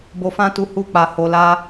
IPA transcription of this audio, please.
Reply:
b o˧ f ã˦ t u˧ h u˧ k͡p a˨ h o˨ l a˧

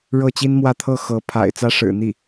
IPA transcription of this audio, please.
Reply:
ɻ ɤ˥˩ t͡ɕ i˥ n m w ä˥˧ t̪ʰ ɤ˥˩ x ɤ˧˥ pʰ a̰˨˩ ɪ̯ t͡s ä˥ ʂ ɻ̩˨˩ n̪ i˥˩

